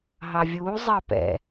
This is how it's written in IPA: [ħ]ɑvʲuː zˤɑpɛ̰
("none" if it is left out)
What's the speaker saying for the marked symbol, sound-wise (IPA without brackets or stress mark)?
ɦ